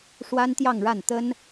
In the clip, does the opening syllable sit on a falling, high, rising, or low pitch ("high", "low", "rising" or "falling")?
high